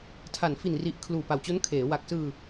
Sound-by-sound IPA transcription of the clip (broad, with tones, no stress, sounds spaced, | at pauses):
tʰ a˩˦ n f i˨˩ n r i˨˩ ʔ kʰ l uː˨˩ p a˨˩ w t͡ɕ o˦˥ n kʰ eː˩˦ w a˨˩ k̚ s ɯː˧